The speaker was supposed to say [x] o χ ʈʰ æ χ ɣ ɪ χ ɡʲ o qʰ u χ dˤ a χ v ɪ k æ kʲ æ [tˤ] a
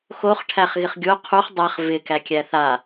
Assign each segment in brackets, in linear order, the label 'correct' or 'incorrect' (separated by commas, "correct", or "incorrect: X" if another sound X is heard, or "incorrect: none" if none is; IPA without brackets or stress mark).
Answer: correct, incorrect: θ